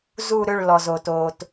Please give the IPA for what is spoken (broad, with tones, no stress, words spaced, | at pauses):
zu˦˨ ɾʏ˦˨ɭ lɔ˩zoː˩toː˩t